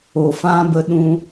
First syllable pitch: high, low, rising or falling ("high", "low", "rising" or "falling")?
low